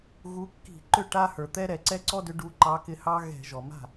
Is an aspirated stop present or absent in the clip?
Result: absent